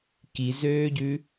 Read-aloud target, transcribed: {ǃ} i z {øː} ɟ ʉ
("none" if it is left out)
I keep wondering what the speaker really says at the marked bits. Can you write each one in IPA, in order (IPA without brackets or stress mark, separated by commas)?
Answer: k, øː